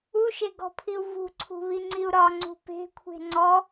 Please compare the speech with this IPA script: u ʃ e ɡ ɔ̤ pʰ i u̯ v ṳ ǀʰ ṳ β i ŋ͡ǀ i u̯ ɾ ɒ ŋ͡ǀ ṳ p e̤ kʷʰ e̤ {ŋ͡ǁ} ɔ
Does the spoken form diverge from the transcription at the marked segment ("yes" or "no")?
yes